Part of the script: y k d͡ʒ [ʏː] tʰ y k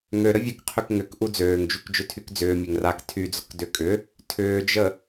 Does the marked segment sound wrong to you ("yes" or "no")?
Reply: yes